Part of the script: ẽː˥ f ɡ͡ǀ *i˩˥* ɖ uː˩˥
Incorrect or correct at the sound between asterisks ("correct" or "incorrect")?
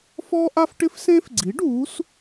correct